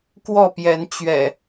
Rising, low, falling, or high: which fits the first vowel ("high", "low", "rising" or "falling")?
falling